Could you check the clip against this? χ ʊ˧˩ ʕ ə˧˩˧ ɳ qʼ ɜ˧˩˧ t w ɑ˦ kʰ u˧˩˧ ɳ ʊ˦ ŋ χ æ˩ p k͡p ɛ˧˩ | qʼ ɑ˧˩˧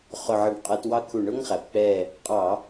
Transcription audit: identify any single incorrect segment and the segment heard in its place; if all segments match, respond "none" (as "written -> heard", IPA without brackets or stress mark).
none